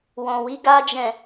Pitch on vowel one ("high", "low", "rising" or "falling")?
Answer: low